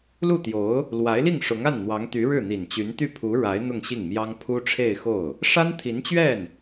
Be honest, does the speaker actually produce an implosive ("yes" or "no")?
no